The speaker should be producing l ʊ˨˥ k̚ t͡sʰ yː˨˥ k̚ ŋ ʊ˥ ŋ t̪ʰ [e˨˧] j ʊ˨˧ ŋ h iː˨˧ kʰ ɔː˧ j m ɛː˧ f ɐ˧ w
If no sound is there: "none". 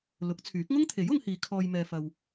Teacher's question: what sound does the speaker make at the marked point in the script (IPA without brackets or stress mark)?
e˨˥